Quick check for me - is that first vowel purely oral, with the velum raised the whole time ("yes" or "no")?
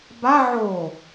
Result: yes